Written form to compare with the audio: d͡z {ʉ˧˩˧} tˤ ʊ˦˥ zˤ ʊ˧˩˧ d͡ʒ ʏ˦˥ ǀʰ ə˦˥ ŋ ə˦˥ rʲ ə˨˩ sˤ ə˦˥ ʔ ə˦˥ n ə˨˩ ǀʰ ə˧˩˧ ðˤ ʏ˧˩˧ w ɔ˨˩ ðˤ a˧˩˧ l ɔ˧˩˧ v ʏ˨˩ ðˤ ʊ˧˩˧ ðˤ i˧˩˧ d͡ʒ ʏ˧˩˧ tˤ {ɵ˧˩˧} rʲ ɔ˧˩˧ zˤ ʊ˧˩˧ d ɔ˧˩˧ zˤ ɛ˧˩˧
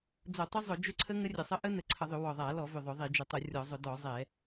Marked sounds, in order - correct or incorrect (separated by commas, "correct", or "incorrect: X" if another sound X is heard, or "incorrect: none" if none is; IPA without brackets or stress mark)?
incorrect: ʊ˧˩˧, incorrect: ʊ˧˩˧